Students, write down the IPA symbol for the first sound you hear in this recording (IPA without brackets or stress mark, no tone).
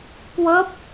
k